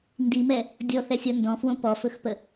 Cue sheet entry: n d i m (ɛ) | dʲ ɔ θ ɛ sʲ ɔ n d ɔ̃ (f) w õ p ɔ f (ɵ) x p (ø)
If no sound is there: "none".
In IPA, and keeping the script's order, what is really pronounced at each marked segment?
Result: ɛ, f, ɵ, ə

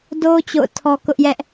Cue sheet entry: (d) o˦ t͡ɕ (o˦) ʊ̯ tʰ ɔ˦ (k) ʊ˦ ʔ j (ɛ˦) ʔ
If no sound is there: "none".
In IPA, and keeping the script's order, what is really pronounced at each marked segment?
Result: d, o̰˦˨, k, ɛ˦

